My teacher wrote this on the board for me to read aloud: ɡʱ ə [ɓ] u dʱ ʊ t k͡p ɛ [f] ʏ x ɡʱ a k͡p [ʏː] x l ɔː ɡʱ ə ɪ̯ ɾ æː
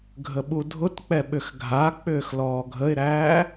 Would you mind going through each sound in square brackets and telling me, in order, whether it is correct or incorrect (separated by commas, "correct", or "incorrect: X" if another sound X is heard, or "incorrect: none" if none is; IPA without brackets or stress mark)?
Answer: correct, incorrect: ɓ, correct